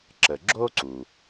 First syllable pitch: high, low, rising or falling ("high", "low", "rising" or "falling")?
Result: low